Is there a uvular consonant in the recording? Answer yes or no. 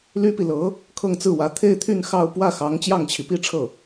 no